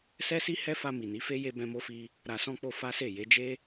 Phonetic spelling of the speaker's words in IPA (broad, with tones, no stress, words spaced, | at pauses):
sɛ˦si˦ hɛ˦fa˧ mi˨ni˨˦fe˦ je˧bɛ̃˧mo˧fi˧ | ɾa˨sɔ̃˧k͡po˧ fa˦se˦˨ je˨˦d͡ʒe˦